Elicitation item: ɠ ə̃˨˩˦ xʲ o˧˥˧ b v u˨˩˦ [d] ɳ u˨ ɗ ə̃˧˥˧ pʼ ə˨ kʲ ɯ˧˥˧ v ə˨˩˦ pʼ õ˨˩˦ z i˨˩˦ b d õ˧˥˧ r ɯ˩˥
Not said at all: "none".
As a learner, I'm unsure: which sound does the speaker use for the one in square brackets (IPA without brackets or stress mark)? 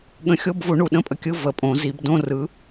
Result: none